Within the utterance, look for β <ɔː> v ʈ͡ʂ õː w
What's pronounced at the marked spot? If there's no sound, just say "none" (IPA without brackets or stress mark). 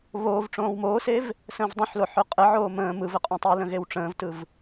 oː